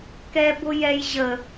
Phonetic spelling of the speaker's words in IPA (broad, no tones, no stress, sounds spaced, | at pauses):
k ɛ b ʊ j ɛ j ʑ ə